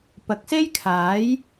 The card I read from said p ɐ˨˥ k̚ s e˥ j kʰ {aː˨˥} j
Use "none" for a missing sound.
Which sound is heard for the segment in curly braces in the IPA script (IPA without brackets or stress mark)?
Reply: aː˨˥